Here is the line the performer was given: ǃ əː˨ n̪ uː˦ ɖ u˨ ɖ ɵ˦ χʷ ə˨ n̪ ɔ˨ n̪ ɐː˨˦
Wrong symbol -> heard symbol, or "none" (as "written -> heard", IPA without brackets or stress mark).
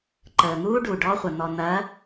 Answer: ɵ˦ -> ɔ˦